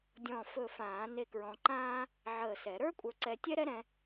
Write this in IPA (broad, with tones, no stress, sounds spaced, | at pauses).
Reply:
dʲ ɔ̃˧˩ f ɵ˧˩ f ãː˨˩˦ n e˧ k ɹ ɔ̃˧ ǃ ãː˥ | ʕ əː˧˩ s ɛ˨˩˦ ɾ ə˞˥ kʷʼ ə˞˧ ǀ ɛ˧ tʲ ɛ˥ ɾ ɛ˥ ɾ ɛ̃˧